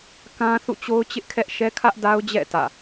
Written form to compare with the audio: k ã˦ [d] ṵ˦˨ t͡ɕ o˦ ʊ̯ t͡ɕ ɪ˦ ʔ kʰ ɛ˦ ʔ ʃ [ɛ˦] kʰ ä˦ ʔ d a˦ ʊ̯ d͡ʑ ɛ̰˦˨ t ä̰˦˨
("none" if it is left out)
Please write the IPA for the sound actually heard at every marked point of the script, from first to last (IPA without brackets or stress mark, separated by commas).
θ, ɛ˦